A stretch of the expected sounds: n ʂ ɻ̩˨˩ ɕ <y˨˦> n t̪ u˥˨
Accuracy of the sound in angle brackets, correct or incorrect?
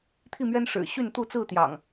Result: incorrect